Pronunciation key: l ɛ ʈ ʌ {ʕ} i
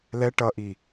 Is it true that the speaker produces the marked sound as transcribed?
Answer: no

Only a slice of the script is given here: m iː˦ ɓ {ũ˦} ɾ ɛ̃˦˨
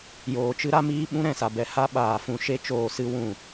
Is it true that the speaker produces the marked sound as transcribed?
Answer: yes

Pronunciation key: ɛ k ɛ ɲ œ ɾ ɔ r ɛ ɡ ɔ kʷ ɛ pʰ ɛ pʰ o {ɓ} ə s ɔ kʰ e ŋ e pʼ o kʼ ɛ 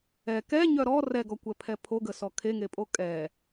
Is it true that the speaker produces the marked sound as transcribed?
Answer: no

